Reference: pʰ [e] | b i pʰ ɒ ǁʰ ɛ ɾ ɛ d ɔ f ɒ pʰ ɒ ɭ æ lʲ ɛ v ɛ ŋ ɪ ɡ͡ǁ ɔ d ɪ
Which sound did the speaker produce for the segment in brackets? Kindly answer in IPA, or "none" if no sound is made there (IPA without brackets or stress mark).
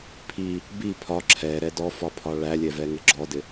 i